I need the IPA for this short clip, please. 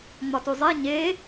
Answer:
ŋ͡m ɒ t u zˤ e ɲ e

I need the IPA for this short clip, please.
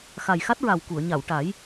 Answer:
x a˨˩ j x a˦˥ t̚ ɹ a˨˩ w k u˨˩˨ ə̯ ɲ a˨˩˨ w ʈ a˨˩˦ j

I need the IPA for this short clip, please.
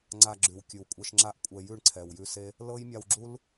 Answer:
ŋ͡ǀ a˧ ɡ͡ǁ ʉ˨ w kʲ ʉ˨ w kʷʼ ɛ˧ ʃ ŋ͡ǁ a˦ ʔ kʷʼ ɛ˧ j ʉ˦˨ ɳ ǀʰ ɛ˨ w j ʉ˧ s e˦ | l ɤ˦ j mʲ a˧ w ɡ͡ǁ u˦ l

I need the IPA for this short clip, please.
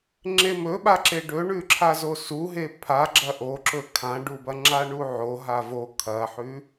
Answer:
ŋ͡ǁ e m ɵ ɓ a ǁ e ɖ ɵ ɳ ʉ ǁʰ a z o s u ɦ e pʰ a ɡ͡ǁ ɐ ʔ o ǁ ɵ kʰ ã ɖ u b ɐ ŋ͡ǁ a ɳ u ʕ o ɦ a v o kʰ ɐ ħ ʉ

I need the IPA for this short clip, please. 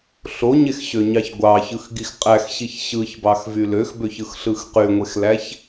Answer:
ɬ o ɲ e x ɕ ø ɲ ɑ ç ɡʷ ɑ ç ɯ x ɡ i x qʼ æ x ɕ i ç ɕ ɯ ç b ɑ x v y l ø x b ø ç ɯ x ɬ ɯ x q y ŋʷ e x l æ ç

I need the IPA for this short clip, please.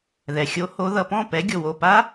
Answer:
ð ɛ˩ xʲ o˨˥ h o˨˥ ð ʌ˩˧˩ p ɔ̃˥˩ p ɛ˨˥ ɡʲ o˩ w o˩˧˩ p a˦˥

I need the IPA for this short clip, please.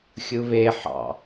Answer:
xʲ ɯ β e ħ ɑ̰

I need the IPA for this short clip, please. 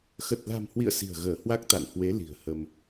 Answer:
x ə˨˩ t̚ l a̤˨˩ m h w ḭ˧˨ ə̯ s i̤˨˩ ə̯ ɣ əː˧˩ h w a˦˥ k̚ t̪ a̰˧˨ n h w e˨˦ l i̤˨˩ ə̯ h ə˧ m

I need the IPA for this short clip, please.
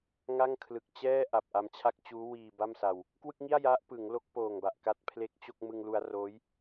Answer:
ŋ a˥˩ ŋ kʰ l ɯ˨˩ k̚ t͡ɕ ɛː˥˩ ʔ a˨˩ p̚ ʔ a˧ m t͡ɕʰ a˥˩ k̚ t͡ɕ uː˦˥ w iː˧ b a˥˩ m s a˧ w | k w ɯ˥˩ k̚ ŋ i˥˩ a̯ j a˦˥ ʔ p ɯ˩˦ ŋ l o˦˥ k̚ p oː˨˩ ŋ b a˨˩ ʔ k a˥˩ t̚ pʰ l e˥˩ k̚ t͡ɕ o˥˩ k̚ m ɯ˧ ŋ l u˧ a̯ r oː˦˥ j

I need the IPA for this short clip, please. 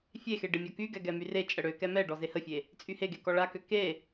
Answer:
fʲ e x e ɖ e mʲ ɔ k y ɡ ɛ ɡ ɛ m y r e t͡ʃʼ ə ɽ ø k ɛ m ɛ ɖ ɔ z e h ə fʲ e | t͡sʼ y h e ɡ e k ɔ ɭ a k ø k e

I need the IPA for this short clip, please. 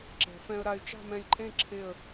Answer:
ǁ ɛ̤˩˧ f ɛ̃˧ ə̯ ɾ a˧ ɪ̯ t͡ʃ ɑ̤˥˧ m ɛ̃˧ lʲ ǃʼ ẽ˥˧ ǁʰ e˧˩ ə̯

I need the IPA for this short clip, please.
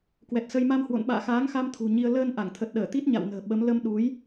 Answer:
k w ɛ˨˩ t̚ s ə˧ j m a˧ m h w o̰˧˨ n ɓ a̰ː˧˨ x aː˨˦ ŋ x a˧ m t̪ʰ ṳ˨˩ ɲ i˧ ə̯ l əː˧ n ʔ a˧˩ ŋ t̪ʰ ə˨˩ t̚ ɗ əː˧˩ t̪ i˦˥ t̚ ɲ a̰˧˨ w n ə̤ː˨˩ ɓ ə˨˦ m l ə˧ m ɗ u˨˦ j

